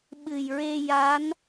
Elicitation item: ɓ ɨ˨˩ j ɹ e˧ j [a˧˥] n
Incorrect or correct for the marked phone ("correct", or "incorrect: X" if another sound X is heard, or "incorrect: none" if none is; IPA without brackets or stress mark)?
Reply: correct